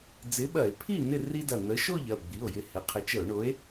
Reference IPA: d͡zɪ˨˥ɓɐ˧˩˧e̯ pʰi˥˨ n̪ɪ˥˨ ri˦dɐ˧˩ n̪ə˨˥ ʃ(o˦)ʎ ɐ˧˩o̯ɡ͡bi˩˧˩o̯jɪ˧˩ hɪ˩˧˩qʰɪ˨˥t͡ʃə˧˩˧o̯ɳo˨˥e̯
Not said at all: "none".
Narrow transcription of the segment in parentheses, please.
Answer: o˥˨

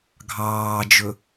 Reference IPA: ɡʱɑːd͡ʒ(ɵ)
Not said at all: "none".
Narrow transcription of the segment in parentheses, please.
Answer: ɵ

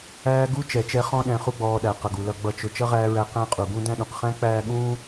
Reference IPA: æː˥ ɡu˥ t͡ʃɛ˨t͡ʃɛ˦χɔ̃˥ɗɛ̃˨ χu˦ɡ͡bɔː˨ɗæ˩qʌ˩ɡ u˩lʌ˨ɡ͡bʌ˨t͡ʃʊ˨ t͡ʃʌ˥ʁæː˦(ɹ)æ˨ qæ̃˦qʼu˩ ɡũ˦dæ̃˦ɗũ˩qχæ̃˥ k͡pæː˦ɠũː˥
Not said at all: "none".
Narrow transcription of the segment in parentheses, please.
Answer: ɹ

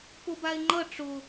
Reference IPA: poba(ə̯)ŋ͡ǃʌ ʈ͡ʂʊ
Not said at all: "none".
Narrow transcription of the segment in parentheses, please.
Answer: ɪ̯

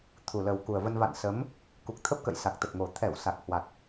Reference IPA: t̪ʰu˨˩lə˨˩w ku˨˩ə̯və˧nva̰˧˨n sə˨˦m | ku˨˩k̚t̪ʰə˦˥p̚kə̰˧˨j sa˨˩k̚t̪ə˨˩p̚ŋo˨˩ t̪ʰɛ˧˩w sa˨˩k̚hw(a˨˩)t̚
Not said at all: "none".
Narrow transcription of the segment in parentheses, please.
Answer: a˨˩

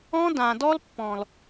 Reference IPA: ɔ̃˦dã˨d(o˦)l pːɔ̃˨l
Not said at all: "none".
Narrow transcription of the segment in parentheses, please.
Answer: ɔ˦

